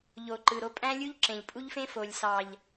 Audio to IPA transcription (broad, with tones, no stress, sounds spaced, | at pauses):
ʎ o˨ ǃ ɯ˨ ɾ o˦ pʼ æ̃˦ lʲ u˦ ʎ ǁ ẽ˨ ʎ pʼ u˦ ʎ f ẽ˦ f o˨ lʲ s ɑ˨ ʎ